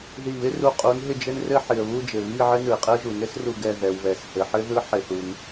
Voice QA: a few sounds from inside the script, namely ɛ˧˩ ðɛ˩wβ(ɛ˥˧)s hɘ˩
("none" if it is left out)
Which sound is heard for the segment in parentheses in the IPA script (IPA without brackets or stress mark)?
ɛ˩